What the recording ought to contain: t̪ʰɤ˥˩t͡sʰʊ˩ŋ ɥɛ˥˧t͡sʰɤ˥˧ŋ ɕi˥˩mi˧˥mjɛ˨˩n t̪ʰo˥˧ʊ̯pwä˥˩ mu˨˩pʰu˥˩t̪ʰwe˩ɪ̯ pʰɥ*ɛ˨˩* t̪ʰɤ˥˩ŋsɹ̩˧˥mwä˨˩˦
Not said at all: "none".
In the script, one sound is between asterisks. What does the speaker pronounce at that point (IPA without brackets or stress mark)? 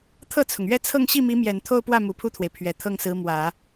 ɛ˨˩